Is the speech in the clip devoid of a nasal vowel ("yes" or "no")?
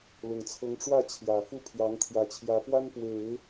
yes